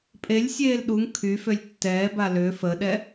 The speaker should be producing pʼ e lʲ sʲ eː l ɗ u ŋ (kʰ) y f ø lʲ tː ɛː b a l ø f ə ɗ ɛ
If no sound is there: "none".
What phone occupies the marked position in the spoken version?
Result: kʰ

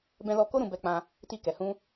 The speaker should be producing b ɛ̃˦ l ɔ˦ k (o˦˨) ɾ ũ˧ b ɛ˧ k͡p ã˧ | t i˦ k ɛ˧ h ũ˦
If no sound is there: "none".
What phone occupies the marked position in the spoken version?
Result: o˦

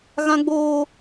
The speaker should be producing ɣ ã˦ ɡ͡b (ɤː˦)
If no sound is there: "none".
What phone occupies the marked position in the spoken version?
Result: oː˦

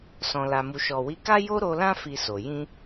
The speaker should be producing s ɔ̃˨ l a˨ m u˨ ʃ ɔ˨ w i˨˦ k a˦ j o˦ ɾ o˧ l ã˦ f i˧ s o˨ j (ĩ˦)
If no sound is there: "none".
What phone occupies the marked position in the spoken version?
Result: ĩ˧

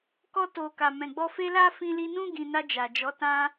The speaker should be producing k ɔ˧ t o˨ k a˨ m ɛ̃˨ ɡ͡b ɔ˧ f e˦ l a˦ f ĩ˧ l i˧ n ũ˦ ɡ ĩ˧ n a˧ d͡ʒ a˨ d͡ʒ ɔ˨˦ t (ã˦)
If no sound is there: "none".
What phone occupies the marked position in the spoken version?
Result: ã˦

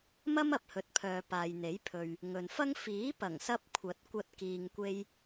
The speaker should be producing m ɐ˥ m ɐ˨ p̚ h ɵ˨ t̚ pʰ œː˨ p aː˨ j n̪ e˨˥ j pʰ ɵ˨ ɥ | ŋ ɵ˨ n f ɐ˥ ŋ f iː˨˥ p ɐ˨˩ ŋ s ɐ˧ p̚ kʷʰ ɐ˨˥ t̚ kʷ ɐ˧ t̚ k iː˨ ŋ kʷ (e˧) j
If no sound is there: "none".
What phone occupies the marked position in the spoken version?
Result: e˧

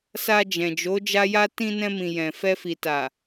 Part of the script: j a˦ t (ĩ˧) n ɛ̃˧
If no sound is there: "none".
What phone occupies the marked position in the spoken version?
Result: ĩ˧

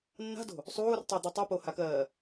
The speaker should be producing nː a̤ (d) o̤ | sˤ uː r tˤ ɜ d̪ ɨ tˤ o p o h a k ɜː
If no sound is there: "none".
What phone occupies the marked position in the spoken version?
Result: d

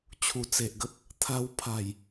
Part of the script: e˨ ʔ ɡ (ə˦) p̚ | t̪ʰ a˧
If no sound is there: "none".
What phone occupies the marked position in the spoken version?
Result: ə˦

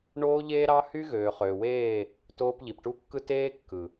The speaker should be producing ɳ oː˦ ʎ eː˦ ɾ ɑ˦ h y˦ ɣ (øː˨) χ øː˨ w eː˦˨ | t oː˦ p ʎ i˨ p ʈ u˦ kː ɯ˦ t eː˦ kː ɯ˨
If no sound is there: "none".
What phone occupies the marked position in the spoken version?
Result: øː˨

